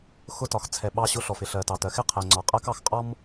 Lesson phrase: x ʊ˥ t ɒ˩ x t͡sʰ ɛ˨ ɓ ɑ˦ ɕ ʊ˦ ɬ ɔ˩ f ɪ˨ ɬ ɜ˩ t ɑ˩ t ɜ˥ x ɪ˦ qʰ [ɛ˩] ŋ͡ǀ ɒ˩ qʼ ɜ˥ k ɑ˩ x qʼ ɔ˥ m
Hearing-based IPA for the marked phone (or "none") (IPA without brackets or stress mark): ɛ˩